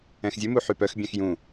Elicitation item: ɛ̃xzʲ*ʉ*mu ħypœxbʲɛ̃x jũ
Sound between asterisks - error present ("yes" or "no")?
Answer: no